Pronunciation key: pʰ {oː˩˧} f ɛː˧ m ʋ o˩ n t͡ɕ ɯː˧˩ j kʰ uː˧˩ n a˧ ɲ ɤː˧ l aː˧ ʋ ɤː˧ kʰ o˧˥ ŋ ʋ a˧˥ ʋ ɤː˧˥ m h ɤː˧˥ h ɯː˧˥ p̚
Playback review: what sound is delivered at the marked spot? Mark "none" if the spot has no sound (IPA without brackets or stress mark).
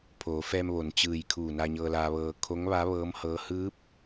oː˩˧